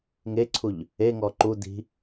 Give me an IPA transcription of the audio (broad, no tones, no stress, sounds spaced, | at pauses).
ŋ e ǀʰ u ʎ | e ŋ ɔ ǃ u d i̤